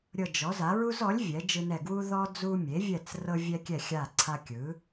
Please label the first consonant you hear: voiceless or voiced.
voiced